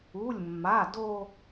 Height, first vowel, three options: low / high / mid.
high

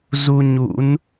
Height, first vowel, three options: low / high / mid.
high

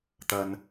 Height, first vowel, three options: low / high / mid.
low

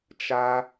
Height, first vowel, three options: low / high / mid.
low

